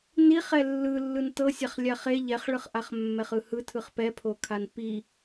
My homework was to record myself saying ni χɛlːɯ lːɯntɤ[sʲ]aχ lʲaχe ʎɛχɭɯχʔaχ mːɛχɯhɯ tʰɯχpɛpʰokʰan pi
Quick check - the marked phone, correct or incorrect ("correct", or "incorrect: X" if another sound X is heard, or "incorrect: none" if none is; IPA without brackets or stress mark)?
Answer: correct